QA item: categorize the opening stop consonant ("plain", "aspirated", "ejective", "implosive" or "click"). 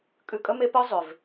ejective